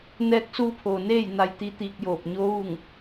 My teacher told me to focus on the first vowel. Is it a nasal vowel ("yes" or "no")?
no